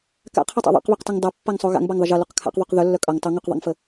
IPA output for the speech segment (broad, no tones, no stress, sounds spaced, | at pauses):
k a̰ qʰ ʌ tˤ a̰ ðˤ a̰ q β œ q t ʌ ŋ dˤ a pː a ŋ sˤ o ɣ a̰ ŋ b a ŋ ðˤ ə ʒ ʌ l o q kʰ a̰ q ðˤ o q ð œ lː œ kʼ ʌ ŋ tˤ ʌ ŋ o q ðˤ a̰ ŋ f ə